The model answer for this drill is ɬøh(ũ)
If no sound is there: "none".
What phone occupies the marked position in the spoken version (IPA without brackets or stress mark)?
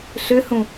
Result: ũ